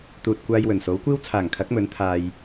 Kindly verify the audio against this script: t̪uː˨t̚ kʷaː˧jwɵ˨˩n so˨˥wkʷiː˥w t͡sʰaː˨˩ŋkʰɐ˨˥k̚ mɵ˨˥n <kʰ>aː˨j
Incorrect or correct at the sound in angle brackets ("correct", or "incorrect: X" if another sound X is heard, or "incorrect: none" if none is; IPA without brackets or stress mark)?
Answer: incorrect: t̪ʰ